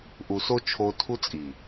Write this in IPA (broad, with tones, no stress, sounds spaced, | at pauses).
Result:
ʔ u˨ s o˦ t͡ʃʰ o˧ tʰ u˦ t͡sʼ i˨